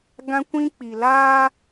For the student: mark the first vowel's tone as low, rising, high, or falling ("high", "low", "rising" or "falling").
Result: high